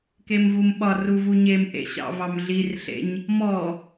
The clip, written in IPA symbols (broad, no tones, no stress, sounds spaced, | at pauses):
k e m v u m ɓ ɒ r u v u ɲ e m ʔ ḛ ɕ ɑ̰ v ɑ m ɮ i r ɬ ḛ ɲ | m ɔ